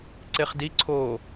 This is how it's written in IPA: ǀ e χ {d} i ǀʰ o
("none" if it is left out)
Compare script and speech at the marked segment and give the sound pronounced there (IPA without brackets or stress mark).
d